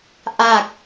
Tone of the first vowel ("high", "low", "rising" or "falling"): low